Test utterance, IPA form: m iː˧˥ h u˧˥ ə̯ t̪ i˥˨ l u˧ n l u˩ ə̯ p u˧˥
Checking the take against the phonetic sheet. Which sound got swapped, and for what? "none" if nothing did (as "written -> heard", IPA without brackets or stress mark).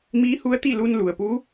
none